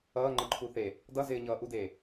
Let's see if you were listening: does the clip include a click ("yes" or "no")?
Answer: yes